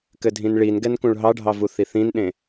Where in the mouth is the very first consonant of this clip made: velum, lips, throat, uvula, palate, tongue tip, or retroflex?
velum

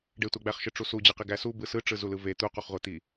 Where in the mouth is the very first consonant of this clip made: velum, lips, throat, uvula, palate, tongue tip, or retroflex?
retroflex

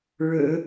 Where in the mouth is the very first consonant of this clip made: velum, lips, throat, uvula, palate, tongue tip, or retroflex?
retroflex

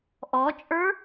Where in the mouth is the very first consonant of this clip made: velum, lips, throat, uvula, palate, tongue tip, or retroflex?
throat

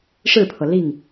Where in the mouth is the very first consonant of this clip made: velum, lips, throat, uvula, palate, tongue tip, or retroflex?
retroflex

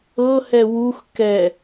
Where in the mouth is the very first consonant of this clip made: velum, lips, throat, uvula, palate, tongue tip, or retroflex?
throat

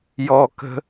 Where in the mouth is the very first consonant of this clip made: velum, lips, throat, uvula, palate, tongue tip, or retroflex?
palate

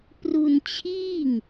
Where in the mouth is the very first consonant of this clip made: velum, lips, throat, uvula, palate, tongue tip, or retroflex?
lips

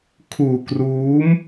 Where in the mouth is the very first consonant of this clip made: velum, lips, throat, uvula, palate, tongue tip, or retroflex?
velum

